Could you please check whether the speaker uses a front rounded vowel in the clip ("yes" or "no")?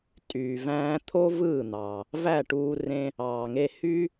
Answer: yes